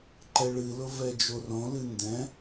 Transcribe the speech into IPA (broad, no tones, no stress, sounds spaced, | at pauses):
ǃ ɛ ɭ ɨ l ʊ v ɛ d͡ʒ o r õ l ɨ n d ɛ̃